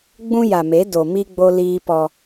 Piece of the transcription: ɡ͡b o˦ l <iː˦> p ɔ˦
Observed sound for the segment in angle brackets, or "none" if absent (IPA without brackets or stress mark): iː˦